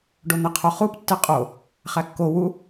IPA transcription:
ɖ o n̪ e qʰ o χ u p tː e qʼ o | χ æ kː o w u

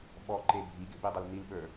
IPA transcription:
ɓ ɔ ǃ e bʱ i ɡ ḛ b i dˤ ɐ l n i l ɓ ə˞

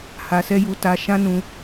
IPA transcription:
h a˧ s ɛ˦ j u˧ t a˧ ʃ ã˦ n ũ˧

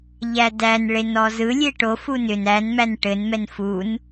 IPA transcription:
ʎ æ d æ n ɭ e n ɔ z ɯ lʲ e ʈ o f u n ʏ n æ n m æ n ʈ ɘ n m ɛ n f u n

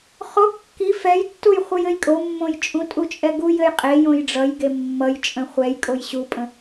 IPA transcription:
χ o kː i f ɛ j tː u j χʷ ə j ɘ j kʼ o mː õ j t͡ʃʼ ũ tʼ u t͡ʃʼ ɛ ɡ u j ɘ j qʼ e j õ j ɖ͡ʐ ʌ j ɡ e mː ʌ j t͡ʃʼ ə̃ χʷ ɛ j kʼ o j ɕ u pʼ ə̃

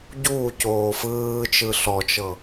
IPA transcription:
ɟ uː c oː f ɯː t͡ʃ ɯ ɬ ɔ t͡ʃ ɤ

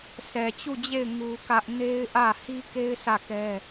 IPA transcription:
s ɛ˨ t͡ɕ u˦˨ d͡ʑ e˦˨ ɪ̯ ŋ u˦ k ä˦ ʔ n e˦ ɪ̯ ʔ ä˦˨ h i˦ k e˦ ɪ̯ s ä˦˨ k ɛ˦

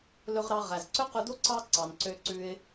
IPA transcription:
l ɵ˧ ʁ ɾ ɑ˧ ʁ æ˩ z ǀ ɵ˥ q ɵ˧ d o˥ ǀ ɑ˥ ǀ ɑ˩ n ǀ ø˧ ǀ ʉ˧ ɪ̯

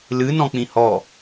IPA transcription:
l ɨ n ɔ̃ k͡p ĩ h ɔ

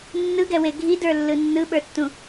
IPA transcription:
nː ɯ ɡ ɛ w e ɡʱ i d ə˞ lː ɯ nː ɯ ɓ ə˞ tː ũ

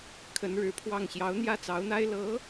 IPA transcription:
kʰ ə˧˥ n ɻ ɻ̩˧˥ pʰ w ɑ˥˩ ŋ ɕ j ɑ˧˥ ʊ̯ n̪ j ä˥ t͡s ɑ˧˥ ʊ̯ n̪ a˥ ɪ̯ l ɤ˧˥

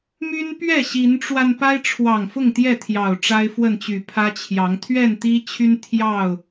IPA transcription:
m y˦ n p ɥ ɛ˥˨ ɕ i˨˦ n ʈ͡ʂ w a˧ n p a˦ ɪ̯ ʈ͡ʂʰ w ɑ˨˩ ŋ f ʊ˥˨ ŋ t̪ j ɛ˥˨ t̪ʰ j ɑ˨˩ ʊ̯ ʈ͡ʂ a˦ ɪ̯ f w ə˥˨ n t͡ɕ y˨˩ pʰ ä˦ t͡ɕʰ j ɑ˨˦ ŋ t̪ʰ ɥ ɛ˥˨ n t̪ i˦ t͡ɕʰ y˦ n t̪ʰ j ɑ˥˨ ʊ̯

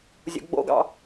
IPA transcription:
zʲ ṵ ɡ͡b o̰ ɡ ɑ̰

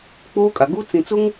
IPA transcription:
k͡p oː˦ kʼ a˨ ɡ u˦ t͡s ĩ˨ t͡s ʊ˦ ŋ

